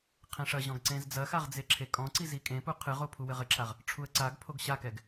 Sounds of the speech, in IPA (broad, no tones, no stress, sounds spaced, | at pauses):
qʰ ẽ ʂ ɐ ʑ ɔ̃ ɡ ǀ ẽ z d͡z ɐ x a ʁ d͡z e ǁʰ e kʼ ɔ̃ ǀ i z i kʼ ẽ p u qʰ ɨ ʁ o pʰ u w ɘ ʁ ɘ ǁʰ a ʁ | ʈ͡ʂʰ u ə̯ ǀ a ɡ pʰ o ɡ ɕ a k ɛ ɡ